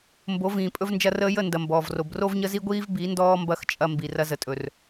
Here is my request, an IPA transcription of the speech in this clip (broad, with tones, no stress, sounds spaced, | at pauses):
m b o˨˦ v ĩː˨ pʼ ɵ˧ v n d͡ʒ ɐ˧ r əː˧ j ə˦˨ n d ɐ˨ m b ɔː˨ v r o˨ b r o˦ v ɲ ə˦ z i˦ ɡʷ iː˦ v b i˨˦ n d ɔː˦ m b ɐ˦˨ x t͡ʃʼ ɐ˧ m b i˨ r ɐ˧ z ə˨ tʼ ɵ˨ r